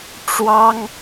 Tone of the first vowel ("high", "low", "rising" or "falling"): high